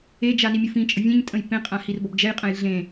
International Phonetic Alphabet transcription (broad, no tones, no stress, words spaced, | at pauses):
ed͡ʒa nimʲʊfĩt͡ʃʼə vʲẽɲ tʼə̃jpẽqʼã hirbɔbd͡ʒɛjqʼə̃j ɮẽ